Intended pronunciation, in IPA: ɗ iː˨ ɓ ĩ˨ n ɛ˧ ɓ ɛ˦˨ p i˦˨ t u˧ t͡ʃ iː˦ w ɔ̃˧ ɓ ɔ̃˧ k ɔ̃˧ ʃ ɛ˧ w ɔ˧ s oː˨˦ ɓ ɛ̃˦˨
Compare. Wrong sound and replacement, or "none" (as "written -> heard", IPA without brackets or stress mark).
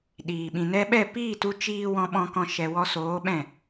i˦˨ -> iː˦˨